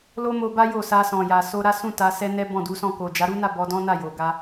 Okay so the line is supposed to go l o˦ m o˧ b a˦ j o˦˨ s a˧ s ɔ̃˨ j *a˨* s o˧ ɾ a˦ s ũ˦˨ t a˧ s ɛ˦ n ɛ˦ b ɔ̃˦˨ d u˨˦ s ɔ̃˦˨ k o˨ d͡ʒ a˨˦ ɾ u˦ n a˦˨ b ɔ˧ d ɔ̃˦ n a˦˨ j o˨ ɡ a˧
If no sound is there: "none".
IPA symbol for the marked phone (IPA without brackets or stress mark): a˨